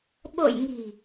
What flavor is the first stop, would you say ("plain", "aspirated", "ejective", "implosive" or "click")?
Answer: implosive